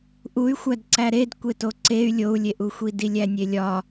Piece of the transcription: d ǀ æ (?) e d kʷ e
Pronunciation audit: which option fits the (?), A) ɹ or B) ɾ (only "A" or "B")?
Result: B